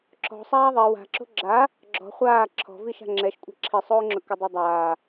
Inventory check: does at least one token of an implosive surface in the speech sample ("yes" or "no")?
no